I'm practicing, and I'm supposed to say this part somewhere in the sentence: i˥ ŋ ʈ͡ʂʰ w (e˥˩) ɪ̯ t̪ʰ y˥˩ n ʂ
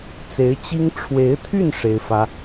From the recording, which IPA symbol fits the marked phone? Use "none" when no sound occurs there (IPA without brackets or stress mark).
e˧˥